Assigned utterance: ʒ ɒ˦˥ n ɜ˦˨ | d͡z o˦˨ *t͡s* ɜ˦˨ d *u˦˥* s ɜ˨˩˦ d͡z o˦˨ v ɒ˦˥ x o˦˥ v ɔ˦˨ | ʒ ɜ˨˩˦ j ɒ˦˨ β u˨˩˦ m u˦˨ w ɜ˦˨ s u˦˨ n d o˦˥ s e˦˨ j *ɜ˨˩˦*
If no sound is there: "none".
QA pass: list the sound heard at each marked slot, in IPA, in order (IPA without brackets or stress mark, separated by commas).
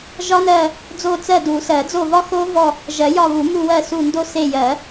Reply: t͡s, u˨˩˦, ɜ˨˩˦